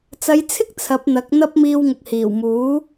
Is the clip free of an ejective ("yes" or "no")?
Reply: yes